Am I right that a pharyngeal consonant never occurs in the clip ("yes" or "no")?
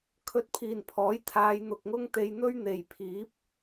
yes